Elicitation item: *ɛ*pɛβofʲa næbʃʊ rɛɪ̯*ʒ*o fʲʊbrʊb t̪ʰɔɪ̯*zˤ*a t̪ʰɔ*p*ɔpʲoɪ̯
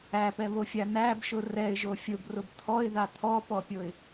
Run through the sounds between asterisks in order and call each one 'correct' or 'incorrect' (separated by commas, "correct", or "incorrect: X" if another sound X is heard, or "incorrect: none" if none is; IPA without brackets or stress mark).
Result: incorrect: æ, correct, incorrect: ð, correct